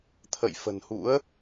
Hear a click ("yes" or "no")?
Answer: no